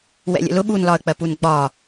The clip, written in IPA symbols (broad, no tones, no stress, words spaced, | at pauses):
wɛ̰lʲə̰lʊ ɓunlɒə̯k͡pɜpun ɡ͡bɒ